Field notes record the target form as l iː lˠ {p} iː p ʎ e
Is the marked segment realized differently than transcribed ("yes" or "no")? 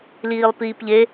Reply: no